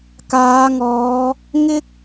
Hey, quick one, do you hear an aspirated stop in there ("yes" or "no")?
no